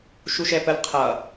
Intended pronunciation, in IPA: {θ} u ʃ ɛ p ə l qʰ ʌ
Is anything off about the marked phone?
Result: yes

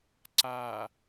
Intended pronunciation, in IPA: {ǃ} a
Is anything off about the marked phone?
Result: yes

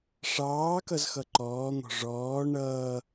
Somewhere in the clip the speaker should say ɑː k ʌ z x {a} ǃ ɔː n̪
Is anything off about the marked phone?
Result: yes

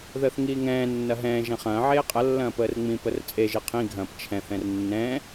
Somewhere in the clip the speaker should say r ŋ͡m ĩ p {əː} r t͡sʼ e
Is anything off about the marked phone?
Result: yes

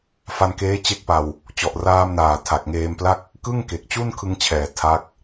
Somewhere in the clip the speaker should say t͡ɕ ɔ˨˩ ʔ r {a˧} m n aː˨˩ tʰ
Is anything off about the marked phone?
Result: yes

